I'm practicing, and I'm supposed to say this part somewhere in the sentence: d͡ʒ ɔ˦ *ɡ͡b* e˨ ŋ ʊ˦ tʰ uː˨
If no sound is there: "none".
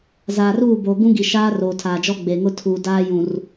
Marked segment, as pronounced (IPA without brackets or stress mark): ɡ͡b